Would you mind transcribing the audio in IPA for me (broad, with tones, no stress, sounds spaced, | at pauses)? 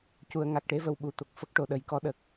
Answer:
c u˨˩˨ ə̯ ŋ a˨˩ k̚ ʈ e˧ v ə˨˩˨ w ɓ u˨˩˨ t̪ o˨˩ k̚ f ə˦˥ k̚ ʈ o˨˩ ɗ ə˨˩˦ j k ɔ˧˥ ɗ ə˨˩ k̚